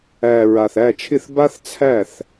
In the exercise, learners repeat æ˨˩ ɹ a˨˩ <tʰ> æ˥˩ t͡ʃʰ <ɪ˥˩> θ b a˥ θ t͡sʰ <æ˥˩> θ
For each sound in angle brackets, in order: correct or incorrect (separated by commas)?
incorrect, correct, correct